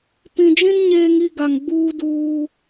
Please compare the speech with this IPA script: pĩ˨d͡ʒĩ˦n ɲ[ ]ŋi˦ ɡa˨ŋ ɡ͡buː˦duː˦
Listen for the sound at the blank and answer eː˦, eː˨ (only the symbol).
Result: eː˦